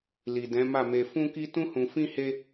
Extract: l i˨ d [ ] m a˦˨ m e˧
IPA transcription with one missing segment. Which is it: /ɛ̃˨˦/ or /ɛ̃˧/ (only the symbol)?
ɛ̃˨˦